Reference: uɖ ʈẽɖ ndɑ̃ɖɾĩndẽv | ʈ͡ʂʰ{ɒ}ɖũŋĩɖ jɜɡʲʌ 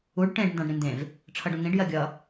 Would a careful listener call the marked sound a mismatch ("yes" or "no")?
yes